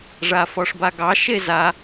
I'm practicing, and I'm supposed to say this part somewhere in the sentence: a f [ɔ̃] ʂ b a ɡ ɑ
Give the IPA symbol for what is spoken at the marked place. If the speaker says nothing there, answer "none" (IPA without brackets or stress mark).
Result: ɔ